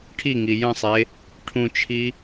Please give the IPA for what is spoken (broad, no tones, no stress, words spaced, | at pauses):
ʈʰiŋi jə̃sˤe | ʈʰũt͡ʃʰi